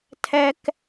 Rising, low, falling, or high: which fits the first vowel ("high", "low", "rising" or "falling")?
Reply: high